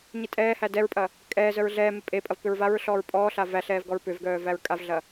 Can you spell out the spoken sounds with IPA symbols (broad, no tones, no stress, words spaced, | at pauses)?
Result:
ɲitʼɛːhæ dɛɹpʼɐ | kʼɛː zœɹɮɛːme pʼepʼɐv pʏɹvaɹɬɔːɹ pʼɔːɬa væɬɛːv ɡɔɹpʏvɡœː væɹkʼavɮɐ